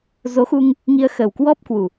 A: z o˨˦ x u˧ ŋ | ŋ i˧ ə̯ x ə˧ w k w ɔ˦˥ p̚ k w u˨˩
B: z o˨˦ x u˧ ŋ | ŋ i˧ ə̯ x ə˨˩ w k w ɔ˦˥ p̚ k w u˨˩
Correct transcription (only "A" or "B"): B